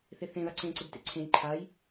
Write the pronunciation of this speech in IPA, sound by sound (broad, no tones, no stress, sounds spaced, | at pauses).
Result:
θ e θ ẽ ð a ǀ ẽ ǀ ɪ b t ḛ ǀʰ ẽ j ǃʰ a j